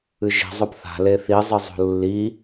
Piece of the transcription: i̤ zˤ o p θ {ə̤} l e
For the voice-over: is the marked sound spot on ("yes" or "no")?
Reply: no